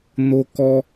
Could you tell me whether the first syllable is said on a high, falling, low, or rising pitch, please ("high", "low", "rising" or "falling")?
high